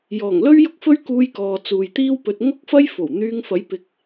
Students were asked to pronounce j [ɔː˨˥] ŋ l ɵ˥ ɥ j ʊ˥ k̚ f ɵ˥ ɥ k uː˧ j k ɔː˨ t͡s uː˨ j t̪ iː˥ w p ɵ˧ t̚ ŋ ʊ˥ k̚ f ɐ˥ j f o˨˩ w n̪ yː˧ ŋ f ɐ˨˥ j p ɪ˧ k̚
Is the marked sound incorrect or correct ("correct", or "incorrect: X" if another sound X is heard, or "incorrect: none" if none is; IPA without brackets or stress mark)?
incorrect: ɔː˨˩